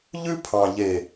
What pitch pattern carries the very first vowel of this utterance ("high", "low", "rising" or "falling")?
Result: high